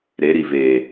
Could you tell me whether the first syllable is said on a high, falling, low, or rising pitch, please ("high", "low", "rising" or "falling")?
rising